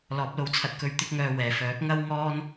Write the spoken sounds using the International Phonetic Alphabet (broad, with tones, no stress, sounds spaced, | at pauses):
l ɔː˨˥ p̚ l o˧ w t͡sʰ ɐ˧ t̚ k ɵ˧ ɥ t̪ ɪ˥ k̚ ŋ œː˧ w ɛː˨ f œː˨˥ k̚ ŋ ɐ˥ w ŋ ɔː˥ n